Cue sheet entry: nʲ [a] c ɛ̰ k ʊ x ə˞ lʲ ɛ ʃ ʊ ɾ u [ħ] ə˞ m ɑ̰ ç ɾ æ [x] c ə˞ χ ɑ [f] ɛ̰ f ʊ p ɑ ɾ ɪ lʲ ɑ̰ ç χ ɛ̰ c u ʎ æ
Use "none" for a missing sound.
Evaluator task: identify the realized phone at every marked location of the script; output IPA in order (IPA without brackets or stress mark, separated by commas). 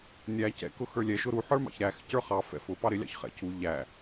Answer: æ, ħ, x, f